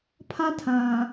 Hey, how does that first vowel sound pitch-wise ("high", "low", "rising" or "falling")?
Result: high